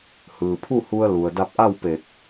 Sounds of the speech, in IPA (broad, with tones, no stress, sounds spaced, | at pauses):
h ɯː˩ pʰ u˥˨ h u˧ ə̯ l u˩ ə̯ d a˧ p̚ ʔ a˥˨ w p e˧˩ k̚